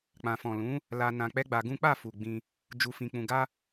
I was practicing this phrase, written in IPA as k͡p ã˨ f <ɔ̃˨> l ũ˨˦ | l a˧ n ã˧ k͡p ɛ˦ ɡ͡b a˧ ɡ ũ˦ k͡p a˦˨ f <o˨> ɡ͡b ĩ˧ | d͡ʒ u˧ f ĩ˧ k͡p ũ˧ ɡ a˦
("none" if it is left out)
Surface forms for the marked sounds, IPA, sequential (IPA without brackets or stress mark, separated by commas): ɔ̃˨, u˨